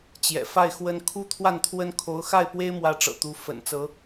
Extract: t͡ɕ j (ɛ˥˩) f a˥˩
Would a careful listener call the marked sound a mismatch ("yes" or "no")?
yes